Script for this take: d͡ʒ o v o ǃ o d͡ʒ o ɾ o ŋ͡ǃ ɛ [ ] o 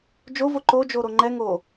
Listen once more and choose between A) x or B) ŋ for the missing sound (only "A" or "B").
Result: B